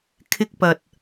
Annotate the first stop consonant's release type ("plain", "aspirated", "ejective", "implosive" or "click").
aspirated